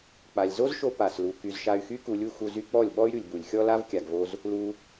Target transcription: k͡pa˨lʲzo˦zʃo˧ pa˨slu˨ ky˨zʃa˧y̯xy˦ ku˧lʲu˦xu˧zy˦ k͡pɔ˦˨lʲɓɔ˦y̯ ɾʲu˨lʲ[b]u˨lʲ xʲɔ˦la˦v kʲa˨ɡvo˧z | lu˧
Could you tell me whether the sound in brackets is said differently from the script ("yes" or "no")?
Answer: no